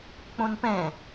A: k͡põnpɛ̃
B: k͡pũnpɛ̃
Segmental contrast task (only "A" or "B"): A